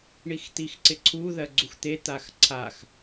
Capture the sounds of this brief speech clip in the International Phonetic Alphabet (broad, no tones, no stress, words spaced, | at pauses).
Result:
ɳixt̪ixǀɪǀʰu ðɜɡ͡ǀuxt̪e t̪axǀʰax